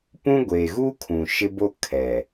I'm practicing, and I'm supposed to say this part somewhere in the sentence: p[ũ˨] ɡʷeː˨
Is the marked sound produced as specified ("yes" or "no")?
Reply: no